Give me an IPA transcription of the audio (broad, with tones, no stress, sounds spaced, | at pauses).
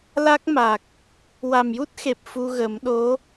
l a˦˥ k̚ m a˨˩ k̚ | w a˨˩ m j u˦˥ t̚ x e˨˩ p̚ f u˧ ɣ ə˨˩˦ m ɗ o˧˥